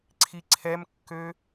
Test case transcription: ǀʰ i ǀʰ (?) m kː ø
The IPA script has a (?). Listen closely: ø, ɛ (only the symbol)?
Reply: ɛ